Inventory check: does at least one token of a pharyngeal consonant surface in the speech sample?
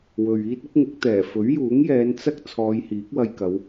no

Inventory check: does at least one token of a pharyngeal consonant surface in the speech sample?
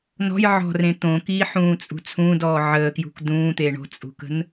yes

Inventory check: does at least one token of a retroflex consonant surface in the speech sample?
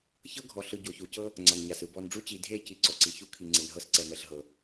yes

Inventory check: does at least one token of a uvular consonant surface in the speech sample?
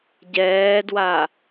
no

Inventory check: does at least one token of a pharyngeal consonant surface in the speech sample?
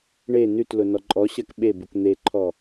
no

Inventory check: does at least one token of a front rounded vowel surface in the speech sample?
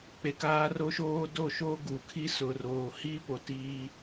no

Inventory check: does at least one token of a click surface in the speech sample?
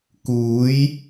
no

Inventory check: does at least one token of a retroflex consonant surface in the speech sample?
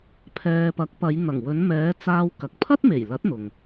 no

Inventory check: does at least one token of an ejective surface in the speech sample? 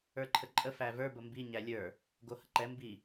yes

